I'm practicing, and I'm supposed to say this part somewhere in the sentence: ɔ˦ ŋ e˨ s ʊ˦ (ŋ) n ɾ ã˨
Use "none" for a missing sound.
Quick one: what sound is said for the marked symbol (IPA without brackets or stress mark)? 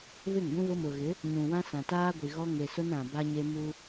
none